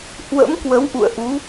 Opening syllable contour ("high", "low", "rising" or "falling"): rising